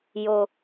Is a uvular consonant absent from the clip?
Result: yes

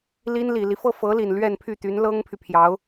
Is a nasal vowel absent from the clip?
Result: yes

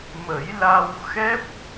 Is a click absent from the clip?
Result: yes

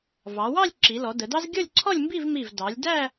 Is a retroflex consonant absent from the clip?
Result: yes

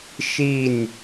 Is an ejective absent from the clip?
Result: yes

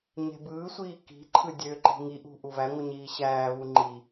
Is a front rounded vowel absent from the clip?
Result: no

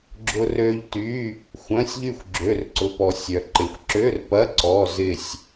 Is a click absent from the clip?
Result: no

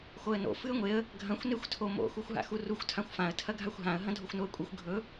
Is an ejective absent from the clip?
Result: no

